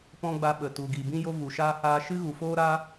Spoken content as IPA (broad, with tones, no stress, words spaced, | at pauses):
pɔ̃˦ɡ͡ba˧ɓə˨tu˨ ɡi˨bĩ˦jo˦ vu˨ʃaː˦haː˦ ʃɨ˦ɣu˨foː˦ɾa˦